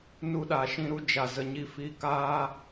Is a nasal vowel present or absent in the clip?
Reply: present